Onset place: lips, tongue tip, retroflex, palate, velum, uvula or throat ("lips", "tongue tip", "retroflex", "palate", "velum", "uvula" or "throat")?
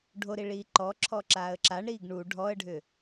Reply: retroflex